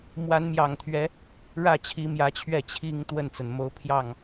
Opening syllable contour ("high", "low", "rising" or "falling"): rising